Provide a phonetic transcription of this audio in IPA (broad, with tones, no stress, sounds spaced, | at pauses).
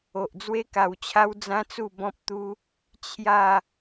o˨ ʔ d͡z w e˦ k a˧ w t͡ɕʰ a˦ w d͡z ã˦ t͡s u˥˧ b ɔ̃˦ p̚ t̪ u˦ | t͡ɕʰ j a˥˧